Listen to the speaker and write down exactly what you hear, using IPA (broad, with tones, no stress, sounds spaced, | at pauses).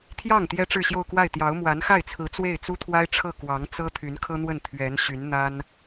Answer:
t̪ʰ j ɑ˥˩ ŋ t̪ j ɛ˥ ʈ͡ʂ ɻ̩˥˧ ɕ j o˥˧ ʊ̯ k w a˥˩ ɪ̯ t̪ j ɑ˧˥ ʊ̯ m w a˧˥ n x a˥˩ ɪ̯ t͡sʰ ɹ̩˧˥ t͡s w e˥˩ ɪ̯ t͡s u˥ t̪ʰ w a˥ ɪ̯ ʈ͡ʂʰ ɤ˥˩ k w ɑ˧˥ ŋ t͡s ɤ˥ t̪ʰ y˧˥ n kʰ ɤ˥ n̪ w ə˥˩ n t̪ʰ ɥ ɛ˧˥ n ɕ y˧˥ n n̪ a˥ n